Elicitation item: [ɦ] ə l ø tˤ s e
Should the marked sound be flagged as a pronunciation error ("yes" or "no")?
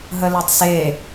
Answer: no